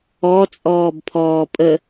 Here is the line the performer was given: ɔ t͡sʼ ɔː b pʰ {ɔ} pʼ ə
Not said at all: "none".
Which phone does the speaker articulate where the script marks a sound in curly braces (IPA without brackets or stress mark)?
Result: ɔː